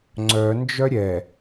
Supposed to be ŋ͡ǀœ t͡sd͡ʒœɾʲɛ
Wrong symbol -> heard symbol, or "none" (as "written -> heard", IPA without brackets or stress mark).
t͡s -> n